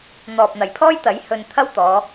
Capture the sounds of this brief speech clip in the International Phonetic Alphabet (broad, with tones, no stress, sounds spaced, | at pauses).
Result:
n̪ ɔː˨ p̚ n̪ ɐ˨˩ j pʰ ɔː˥ j t̪ ɐ˨˥ j h ɵ˧ n t̪ʰ ɐ˥ w t̪ ɔː˨˧